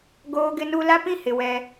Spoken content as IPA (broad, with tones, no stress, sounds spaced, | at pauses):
ɡ oː˦ ɡ ɪ˦ n u˦ l a˦ p ĩ˦ h ɪ˨ w ɛ˦